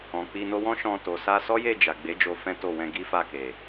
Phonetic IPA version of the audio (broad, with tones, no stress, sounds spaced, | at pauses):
ɔ̃˨ k͡p i˧ n o˧ w ɔ̃˦ ʃ ɔ̃˧ t o˨ s a˧ s ɔ˦ j e˦˨ d͡ʒ a˨ ɡ͡b e˨˦ d͡ʒ o˧ f ɛ̃˦ t o˦˨ w ɛ̃˧ ɡ i˦ f a˦˨ k e˨